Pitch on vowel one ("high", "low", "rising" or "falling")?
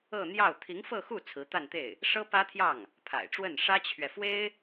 falling